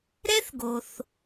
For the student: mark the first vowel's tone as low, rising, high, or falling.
high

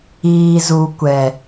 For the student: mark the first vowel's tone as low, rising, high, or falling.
low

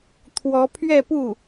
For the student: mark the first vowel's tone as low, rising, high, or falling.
rising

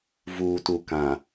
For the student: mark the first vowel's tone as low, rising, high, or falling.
low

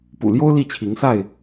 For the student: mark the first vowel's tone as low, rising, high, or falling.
low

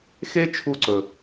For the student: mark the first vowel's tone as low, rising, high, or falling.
high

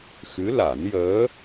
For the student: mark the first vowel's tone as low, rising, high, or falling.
rising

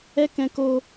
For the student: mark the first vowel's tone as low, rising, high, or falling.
high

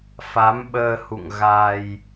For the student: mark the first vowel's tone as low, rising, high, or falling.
rising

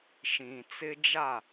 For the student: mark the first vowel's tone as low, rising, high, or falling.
low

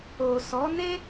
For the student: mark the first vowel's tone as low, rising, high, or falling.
low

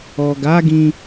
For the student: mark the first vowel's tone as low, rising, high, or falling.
low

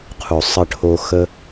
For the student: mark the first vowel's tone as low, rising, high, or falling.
low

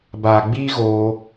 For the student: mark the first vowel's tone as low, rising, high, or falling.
low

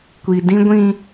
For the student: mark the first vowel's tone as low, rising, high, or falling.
low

